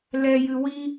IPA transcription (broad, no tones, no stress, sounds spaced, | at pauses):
l ɛ j ɨ w i